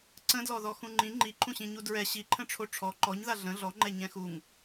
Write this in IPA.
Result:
ǀ ə̃ d l ɔ ð ɔ x ũ ŋ͡ǃ ĩ ŋ͡ǃ i ǃʰ ũ ɕ ĩ ɲ u d ɹ ɛ ɕ i ǃʰ ə̃ ʈ͡ʂʰ o ʈ͡ʂʰ ɔ ǃ ɔ ɲ ð a ɮ ə̃ ɮ ɔ ŋ͡ǃ ɛ ɲ ɛ̃ x u ŋ

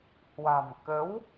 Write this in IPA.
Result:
h w a̤˨˩ m k ə˨˦ w

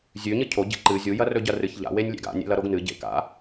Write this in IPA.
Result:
zʲ ʉ ɲ ɨ cʰ o ɟ ḛ ǃ ɨ zʲ u j ɐ r ɵ ɟ ɐ r ɨ ç ʎ a̰ w e nʲ lʲ ḛ ɡ a̰ nʲ ḛ l ɐ ɾ o ɡ n ɨ ɟ ḛ k a̰

